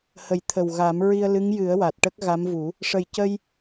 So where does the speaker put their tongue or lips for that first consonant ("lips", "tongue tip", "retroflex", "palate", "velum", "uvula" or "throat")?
throat